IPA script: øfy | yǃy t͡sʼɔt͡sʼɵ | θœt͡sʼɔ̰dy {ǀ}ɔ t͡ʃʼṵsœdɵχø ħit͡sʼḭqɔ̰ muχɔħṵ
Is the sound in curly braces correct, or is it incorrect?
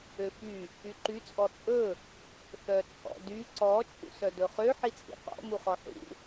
correct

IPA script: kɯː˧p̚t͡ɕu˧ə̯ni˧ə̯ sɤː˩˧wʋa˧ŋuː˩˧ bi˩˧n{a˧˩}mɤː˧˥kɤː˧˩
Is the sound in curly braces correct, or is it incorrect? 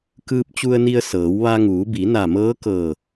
correct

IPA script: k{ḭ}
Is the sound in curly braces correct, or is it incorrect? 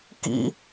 correct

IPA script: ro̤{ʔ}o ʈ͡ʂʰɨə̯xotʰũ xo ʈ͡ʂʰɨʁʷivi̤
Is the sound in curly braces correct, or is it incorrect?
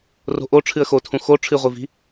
correct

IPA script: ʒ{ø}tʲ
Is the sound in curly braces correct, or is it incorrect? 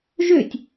correct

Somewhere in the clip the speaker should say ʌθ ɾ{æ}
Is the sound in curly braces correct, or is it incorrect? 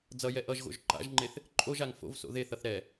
incorrect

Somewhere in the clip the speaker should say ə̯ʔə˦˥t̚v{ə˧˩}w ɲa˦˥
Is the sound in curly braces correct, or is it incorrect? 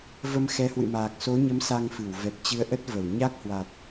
correct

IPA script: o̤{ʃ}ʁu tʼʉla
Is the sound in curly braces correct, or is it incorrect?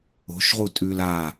correct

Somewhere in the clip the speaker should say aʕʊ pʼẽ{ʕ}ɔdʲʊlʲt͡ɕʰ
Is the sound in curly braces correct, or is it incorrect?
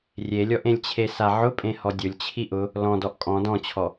incorrect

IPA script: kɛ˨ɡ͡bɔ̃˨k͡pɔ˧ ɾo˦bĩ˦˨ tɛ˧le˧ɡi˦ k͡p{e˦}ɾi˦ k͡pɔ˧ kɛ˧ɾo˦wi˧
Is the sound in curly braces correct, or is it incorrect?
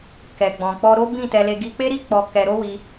correct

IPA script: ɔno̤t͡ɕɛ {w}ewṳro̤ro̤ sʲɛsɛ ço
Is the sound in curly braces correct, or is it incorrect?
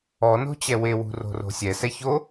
correct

